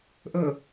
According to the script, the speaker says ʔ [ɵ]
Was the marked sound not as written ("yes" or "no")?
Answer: no